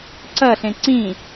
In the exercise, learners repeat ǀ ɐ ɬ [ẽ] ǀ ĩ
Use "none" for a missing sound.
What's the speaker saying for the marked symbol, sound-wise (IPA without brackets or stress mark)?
ẽ